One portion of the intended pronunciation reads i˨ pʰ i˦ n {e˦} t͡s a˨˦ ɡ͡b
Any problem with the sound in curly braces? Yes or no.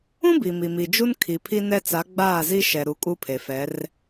yes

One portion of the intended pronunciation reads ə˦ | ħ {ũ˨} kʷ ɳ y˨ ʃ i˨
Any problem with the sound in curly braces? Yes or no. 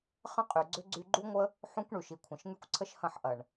yes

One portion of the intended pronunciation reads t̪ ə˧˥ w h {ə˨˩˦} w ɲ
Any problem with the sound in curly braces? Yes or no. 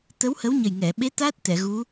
yes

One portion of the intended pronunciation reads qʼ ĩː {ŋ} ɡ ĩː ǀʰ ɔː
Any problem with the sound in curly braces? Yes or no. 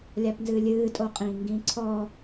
no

